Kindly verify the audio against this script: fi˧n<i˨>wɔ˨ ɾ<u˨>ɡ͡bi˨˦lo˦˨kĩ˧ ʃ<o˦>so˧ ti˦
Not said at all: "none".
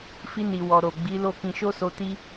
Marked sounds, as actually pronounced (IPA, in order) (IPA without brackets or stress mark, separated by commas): i˨, o˨, o˦